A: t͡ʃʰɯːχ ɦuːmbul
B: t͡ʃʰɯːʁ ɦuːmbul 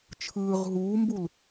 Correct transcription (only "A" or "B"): B